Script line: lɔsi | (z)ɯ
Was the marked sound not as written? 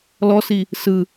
yes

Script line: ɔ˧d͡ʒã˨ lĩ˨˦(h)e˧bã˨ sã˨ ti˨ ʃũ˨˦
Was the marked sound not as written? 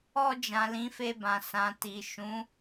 yes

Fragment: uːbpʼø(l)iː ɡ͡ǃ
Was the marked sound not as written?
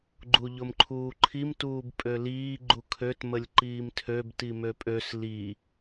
no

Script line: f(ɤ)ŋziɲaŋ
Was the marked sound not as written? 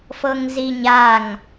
no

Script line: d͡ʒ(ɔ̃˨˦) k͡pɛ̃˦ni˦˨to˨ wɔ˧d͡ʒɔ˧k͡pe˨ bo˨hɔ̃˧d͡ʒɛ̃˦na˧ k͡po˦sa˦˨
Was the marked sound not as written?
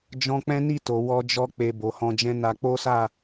yes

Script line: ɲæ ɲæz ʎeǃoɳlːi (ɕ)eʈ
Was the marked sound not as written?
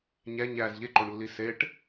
yes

